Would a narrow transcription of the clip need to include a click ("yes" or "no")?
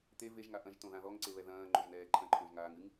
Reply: yes